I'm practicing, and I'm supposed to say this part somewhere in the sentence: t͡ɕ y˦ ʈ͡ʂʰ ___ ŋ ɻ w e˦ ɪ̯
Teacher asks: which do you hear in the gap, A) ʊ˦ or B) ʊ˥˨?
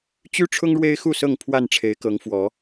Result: A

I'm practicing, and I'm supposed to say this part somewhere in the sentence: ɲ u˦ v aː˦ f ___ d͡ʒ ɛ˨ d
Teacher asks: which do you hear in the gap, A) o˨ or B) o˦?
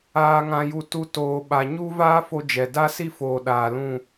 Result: B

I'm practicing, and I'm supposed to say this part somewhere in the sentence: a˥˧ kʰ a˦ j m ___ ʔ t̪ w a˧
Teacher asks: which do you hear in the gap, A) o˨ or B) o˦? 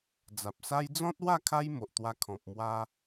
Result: A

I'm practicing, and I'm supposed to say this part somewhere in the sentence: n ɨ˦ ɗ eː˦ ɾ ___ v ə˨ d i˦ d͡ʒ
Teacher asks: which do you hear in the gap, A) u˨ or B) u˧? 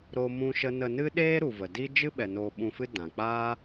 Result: A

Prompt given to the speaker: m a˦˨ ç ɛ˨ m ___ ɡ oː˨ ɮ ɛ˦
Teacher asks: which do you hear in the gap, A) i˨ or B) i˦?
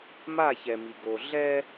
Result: A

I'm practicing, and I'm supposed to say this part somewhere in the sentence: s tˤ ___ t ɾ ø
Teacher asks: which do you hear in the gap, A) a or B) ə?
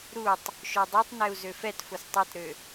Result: A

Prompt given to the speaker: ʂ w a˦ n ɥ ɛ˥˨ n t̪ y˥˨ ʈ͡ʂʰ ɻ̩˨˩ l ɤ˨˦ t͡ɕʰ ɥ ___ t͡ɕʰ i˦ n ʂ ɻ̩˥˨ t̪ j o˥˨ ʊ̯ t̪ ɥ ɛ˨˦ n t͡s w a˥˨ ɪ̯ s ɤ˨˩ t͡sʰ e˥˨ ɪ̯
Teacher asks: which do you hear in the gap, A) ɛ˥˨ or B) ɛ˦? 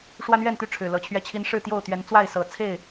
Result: B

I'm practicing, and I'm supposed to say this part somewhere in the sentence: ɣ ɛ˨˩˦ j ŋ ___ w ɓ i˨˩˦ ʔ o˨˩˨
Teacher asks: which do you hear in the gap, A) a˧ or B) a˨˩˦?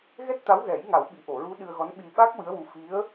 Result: B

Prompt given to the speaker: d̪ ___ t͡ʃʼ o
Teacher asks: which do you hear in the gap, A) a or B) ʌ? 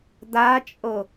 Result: A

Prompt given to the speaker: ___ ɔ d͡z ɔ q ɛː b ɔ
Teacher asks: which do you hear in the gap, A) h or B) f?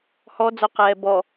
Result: A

